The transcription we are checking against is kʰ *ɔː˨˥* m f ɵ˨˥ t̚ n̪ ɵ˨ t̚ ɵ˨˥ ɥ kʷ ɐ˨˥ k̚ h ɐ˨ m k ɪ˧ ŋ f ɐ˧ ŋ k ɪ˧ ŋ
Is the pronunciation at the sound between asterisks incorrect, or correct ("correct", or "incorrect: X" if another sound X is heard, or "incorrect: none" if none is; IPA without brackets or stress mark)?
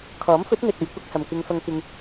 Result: correct